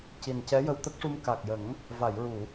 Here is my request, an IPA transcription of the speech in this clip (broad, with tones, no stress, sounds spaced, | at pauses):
c i˨˩ n c ɛ˧˥ j ə˧ w t̪ ə˦˥ k̚ ʂ u˧ m k a˨˩ k̚ j ə˨˩˦ ŋ | v a˨˩˨ j ɹ u˨˩˨